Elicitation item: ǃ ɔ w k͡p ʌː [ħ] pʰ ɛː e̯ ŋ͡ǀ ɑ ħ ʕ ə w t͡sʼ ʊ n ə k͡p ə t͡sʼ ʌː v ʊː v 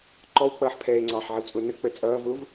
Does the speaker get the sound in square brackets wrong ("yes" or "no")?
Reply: no